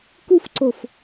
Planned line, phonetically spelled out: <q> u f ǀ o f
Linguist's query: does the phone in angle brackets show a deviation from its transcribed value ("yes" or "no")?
yes